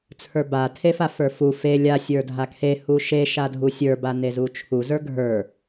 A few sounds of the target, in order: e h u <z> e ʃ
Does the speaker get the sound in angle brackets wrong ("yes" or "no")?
yes